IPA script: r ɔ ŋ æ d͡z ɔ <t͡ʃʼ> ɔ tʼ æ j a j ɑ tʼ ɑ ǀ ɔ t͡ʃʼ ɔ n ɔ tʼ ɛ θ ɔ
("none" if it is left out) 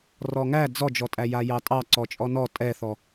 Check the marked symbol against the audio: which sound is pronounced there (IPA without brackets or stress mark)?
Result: d͡ʒ